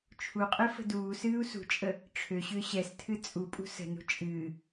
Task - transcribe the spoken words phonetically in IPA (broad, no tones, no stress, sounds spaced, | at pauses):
t͡ʃʰ u qʼ e f ə̤ d uː s ɨː u̯ s ṳ t͡ʃʼ ə | ʈ͡ʂʰ ø ɕ ʏː ɕ ɛ s tʰ ɨ t͡sʼ u pʼ ṳ s ə̤ n ṳ t͡ʃʼ ɨː